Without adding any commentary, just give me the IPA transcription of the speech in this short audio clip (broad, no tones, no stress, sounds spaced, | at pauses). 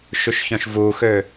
ʃ y ʃ ç œ̃ ʃ v u x ø